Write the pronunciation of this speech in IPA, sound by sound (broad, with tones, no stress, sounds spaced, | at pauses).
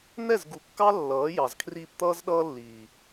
n̪ ɛ˦˨ z ɡ u˨ kː ɑ˦ lː ʌː˨˦ j ɑ˨ z kʰ r iː˧ p t̪ ʌː˦ z ɗ ʌː˦ lː iː˨